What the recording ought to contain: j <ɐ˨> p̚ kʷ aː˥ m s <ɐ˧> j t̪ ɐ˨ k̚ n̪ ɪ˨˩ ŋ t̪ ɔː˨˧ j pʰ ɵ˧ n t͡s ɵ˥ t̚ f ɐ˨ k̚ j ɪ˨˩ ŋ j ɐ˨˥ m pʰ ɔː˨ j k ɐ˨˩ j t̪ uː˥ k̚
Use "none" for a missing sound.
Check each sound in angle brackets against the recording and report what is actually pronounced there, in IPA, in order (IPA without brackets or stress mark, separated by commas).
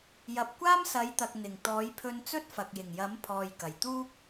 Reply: ɐ˨, ɐ˨˥